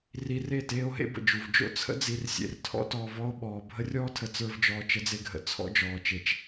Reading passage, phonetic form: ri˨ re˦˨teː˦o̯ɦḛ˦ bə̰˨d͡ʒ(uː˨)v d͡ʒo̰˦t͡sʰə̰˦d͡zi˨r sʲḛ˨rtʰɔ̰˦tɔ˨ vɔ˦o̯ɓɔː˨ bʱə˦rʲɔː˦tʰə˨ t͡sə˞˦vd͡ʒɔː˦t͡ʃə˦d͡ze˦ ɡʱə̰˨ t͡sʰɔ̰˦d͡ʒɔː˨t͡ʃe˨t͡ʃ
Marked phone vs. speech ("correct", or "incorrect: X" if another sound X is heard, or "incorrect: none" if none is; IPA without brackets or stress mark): incorrect: u˨